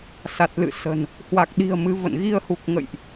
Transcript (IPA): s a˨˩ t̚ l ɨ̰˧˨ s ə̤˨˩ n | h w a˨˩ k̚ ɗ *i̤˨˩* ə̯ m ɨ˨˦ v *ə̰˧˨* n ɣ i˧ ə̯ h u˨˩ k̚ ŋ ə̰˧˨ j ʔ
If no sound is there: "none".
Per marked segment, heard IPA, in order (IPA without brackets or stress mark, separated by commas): i̤˨˩, ə̰˧˨